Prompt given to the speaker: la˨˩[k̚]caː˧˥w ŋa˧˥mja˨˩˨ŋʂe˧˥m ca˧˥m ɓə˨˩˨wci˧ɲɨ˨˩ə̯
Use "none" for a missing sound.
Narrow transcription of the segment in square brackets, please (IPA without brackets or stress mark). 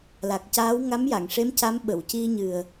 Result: k̚